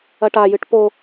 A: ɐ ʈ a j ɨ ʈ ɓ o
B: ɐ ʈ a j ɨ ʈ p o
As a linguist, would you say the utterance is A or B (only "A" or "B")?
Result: B